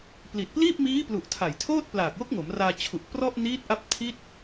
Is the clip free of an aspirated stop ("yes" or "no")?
no